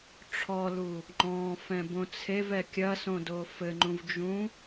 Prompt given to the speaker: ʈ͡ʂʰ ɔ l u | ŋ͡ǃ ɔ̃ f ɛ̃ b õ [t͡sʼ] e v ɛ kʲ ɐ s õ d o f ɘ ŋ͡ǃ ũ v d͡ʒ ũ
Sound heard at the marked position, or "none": t͡sʰ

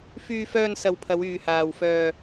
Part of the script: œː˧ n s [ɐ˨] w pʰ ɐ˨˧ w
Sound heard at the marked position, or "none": ɐ˨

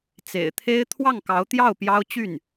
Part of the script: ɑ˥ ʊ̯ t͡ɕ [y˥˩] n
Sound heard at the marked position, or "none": y˥˩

